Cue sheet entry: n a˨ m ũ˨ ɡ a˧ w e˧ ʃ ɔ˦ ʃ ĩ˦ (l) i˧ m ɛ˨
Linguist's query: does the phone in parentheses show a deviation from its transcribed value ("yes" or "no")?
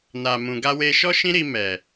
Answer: yes